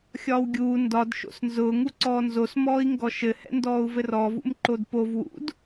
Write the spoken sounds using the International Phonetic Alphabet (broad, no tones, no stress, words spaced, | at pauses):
xʲɒːwɡʲuː ndɒd ʃo̰snzʊː ŋuǀɔːnzos mɔːi̯ŋɡɔʃɘ hɛ̰ndɔːu̯vɘrɔ vṵmǃodpov wṵd